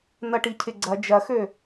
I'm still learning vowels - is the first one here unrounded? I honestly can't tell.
yes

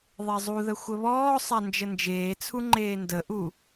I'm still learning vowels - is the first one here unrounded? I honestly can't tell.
yes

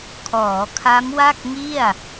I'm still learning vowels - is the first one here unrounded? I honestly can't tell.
no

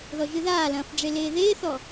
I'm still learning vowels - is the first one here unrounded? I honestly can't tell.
no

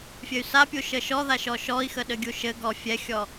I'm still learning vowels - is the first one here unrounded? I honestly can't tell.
yes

